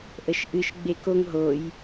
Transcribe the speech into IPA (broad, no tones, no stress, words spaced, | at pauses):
ʔəʃʔɨʃ ɡ͡bekoŋ ɦoj